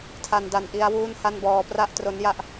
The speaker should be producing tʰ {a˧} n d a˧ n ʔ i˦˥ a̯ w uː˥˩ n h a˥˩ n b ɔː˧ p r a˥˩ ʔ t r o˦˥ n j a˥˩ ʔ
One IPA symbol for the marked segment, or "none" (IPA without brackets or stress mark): a˧